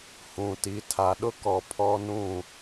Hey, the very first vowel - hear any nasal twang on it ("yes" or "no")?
yes